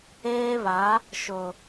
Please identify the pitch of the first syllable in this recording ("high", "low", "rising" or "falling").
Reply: high